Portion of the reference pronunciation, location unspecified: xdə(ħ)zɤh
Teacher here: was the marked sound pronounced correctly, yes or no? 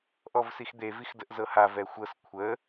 no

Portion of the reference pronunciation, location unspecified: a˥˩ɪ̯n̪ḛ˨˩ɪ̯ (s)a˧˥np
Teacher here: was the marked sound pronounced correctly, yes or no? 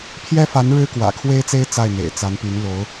no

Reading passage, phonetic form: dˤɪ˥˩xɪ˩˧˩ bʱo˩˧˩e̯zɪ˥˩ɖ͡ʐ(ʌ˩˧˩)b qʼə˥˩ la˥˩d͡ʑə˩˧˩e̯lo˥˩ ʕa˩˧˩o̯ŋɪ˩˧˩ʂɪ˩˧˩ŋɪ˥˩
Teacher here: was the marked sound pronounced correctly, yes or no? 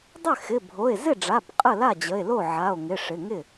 no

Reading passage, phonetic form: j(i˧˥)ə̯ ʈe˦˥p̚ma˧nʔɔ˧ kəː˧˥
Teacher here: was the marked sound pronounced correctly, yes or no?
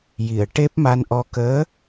no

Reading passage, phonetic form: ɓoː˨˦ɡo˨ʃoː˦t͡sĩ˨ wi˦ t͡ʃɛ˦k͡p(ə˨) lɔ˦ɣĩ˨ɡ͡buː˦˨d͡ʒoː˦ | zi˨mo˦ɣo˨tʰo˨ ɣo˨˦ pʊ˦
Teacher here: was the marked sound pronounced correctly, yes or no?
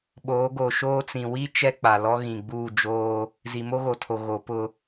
no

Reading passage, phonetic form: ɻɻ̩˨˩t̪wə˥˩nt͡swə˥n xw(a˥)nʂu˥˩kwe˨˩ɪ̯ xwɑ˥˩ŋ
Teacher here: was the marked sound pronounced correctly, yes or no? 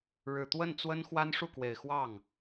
yes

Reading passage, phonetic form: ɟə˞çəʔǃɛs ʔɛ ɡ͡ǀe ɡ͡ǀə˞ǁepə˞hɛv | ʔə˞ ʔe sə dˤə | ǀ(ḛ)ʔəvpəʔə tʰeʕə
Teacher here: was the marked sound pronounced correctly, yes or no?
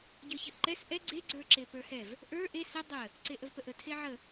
no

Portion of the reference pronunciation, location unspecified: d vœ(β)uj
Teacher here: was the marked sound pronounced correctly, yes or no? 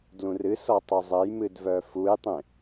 no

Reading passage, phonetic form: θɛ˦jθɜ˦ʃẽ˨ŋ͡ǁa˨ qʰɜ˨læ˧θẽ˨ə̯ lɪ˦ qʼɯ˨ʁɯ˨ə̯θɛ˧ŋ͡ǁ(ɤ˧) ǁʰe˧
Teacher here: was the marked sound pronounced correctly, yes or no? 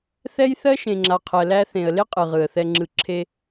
no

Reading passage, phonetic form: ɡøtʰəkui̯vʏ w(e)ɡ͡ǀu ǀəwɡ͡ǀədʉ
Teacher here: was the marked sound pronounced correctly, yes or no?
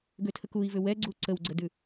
no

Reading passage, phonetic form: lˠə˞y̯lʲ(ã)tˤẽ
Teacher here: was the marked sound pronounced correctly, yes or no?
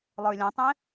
yes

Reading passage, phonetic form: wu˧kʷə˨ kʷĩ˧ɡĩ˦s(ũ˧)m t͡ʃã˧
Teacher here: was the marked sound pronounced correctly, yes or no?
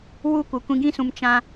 yes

